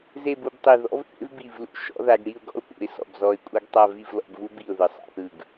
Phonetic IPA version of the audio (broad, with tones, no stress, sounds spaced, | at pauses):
z e˥˧ b u˥˧ b tˤ i˧˩ ð ɔ̰˥ v θ ḛ˥ v b i˧˩ v l ṵ˧ ʃ ɔ̰˥ ð a˧ ɡ ɽ i˥˧ ʊ̯ ɡ ɔ̰˥ ʊ̯ p ṵ˩˧ ɪ̯ s ɔ̰˧˩ b z ɔ˧˩ ɪ̯ kʷʼ a˥ ɡ tˤ a˥˧ v i˥˧ v l ɔ̰˧ b v u˥ b i˧˩ ʊ̯ ð ɯ˩˧ sˤ a̰˥˧ θ ɯ˧˩ ɡ